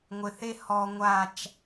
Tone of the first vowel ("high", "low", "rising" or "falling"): low